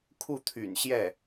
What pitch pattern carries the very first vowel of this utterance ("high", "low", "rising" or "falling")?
falling